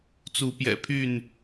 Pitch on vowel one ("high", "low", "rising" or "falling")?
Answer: rising